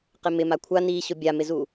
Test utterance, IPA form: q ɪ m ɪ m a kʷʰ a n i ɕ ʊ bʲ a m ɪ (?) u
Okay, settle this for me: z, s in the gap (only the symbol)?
z